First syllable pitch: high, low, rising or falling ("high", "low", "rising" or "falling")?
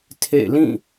falling